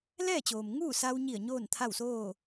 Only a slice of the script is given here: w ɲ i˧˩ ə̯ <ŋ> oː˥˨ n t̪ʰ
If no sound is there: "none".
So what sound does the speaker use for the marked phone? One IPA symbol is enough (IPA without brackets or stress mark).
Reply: ɲ